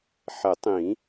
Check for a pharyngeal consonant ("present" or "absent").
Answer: present